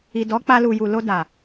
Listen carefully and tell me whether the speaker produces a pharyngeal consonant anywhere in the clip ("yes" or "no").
no